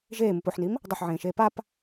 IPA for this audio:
ʒeːmɨp oħnim | dˤɐħʕẽːʃeː pap

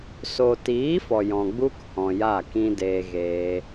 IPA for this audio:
so˨tiː˨˦ fɔ˨jɔ̃˨ ɡ͡bu˦khɔ̃˨ja˦˨ kĩ˧ deː˧ɣeː˧

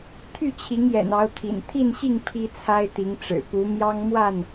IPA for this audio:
t̪ʰy˥˨t͡ɕʰi˨˦ŋjɛ̰˨˩n ɑ˨˦ʊ̯t̪ʰḭ˨˩n t̪ʰi˥˨nɕi˥˨ŋ pʰi˦t͡sʰa˦ɪ̯t̪i˨˦ŋʈ͡ʂɻ̩˨˩ pu˨˦mjɑ˦ŋ mwa˥˨n

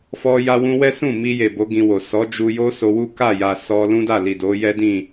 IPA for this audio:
fɔ˦ja˦wũ˦ wɛ˦sũ˦˨ mi˧je˨ bo˨˦ɡĩ˧wo˨ sɔ˨˦d͡ʒu˧jo˦ so˧wu˦ ka˦˨ja˨ sɔ˧ lũ˦da˦˨li˨ do˨˦jɛ˦dĩ˦˨

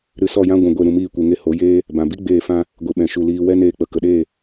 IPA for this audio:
ɾɨ˧sɔ˦˨jã˦ ɡʷũ˨ ɡʷe˦˨ɾũ˧miː˦˨kʷe˧ ŋe˧ho˨˦jeː˦ | bã˨bi˦ ɡ͡beː˦˨fã˦ | ɡʷi˨ɓɛ̃˨ʃu˨ liː˧ wɛ˦neː˧k͡pə˨ kə˨ɗeː˦˨

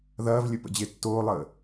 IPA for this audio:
ðɐːvlʲɵ pə̰d͡ʑetːoːlˠəː

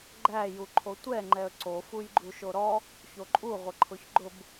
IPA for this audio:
ɡ͡ǃæjuǃʰo tʷɛ ŋ͡ǃɛə̯ǀo fujɡ͡ǃuʃoɾɔ | çoǃʼuʁʷə ǃʰʊçɡ͡ǃʊb

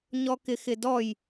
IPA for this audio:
ɲɔkɪxɪdɔj

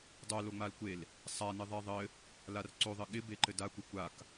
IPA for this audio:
dˤo loŋ͡malkʷel | sˤanɪ ðˤeðˤɘ | larǀoðˤɘ ɠɪbe ǃɘda kʷɘkʷak

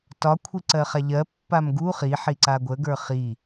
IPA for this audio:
tɒkʷʰiǀɜχa ʎɜ pːamɡu χi ħiǀaɡʷəɡə˞ χi

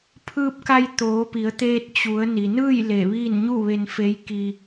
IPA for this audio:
pʰɯː˧p̚ka˧j t̪oː˩˧pi˩˧ə̯t̪eː˧t̚ t͡ɕu˩˧ə̯ ni˩nɯː˥˨j le˧˩ʋiː˥˨n ɲu˥˨ʋe˧n fe˧˥jkiː˧

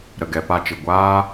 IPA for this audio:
ɾə˨ ɡɛ˨˦pa˦t͡ʃɨ˨ ɡʷaː˦

